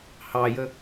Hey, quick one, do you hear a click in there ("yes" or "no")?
no